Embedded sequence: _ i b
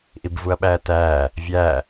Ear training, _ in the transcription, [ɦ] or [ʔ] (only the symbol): ʔ